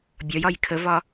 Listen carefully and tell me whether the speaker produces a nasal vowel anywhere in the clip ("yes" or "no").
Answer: no